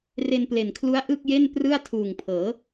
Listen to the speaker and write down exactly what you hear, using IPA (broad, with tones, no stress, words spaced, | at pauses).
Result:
re˧nple˨˩nkʰlu˦˥a̯ ʔɯ˥˩k̚je˥˩n prɯ˥˩a̯ tʰuː˨˩ŋpʰɤː˩˦